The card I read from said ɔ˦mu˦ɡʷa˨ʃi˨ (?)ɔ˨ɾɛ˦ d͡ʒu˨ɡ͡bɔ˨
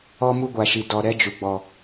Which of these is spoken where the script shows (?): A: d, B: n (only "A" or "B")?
A